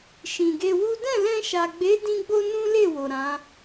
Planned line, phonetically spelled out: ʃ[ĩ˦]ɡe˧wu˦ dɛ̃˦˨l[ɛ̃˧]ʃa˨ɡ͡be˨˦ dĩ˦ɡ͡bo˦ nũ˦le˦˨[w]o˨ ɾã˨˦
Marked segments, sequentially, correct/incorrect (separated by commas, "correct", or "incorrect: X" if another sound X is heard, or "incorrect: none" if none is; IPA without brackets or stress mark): incorrect: ĩ˨, correct, correct